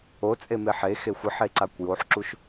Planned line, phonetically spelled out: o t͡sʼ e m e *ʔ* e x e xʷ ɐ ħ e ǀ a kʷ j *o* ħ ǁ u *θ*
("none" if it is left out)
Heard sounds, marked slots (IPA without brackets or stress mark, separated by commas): ħ, o, ʃ